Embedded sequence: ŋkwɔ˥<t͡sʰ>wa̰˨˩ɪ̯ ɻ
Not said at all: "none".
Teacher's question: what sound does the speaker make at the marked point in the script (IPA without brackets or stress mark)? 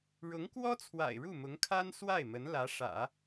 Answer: t͡sʰ